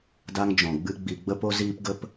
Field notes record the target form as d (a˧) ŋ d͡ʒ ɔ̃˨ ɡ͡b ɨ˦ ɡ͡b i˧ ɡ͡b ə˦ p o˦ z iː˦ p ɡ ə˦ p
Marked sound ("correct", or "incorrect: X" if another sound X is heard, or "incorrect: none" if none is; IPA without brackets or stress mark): incorrect: a˦